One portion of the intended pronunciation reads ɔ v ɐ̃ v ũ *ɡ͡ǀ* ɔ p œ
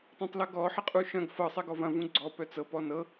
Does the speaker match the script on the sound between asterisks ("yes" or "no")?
yes